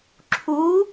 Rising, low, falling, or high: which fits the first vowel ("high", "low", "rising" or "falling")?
rising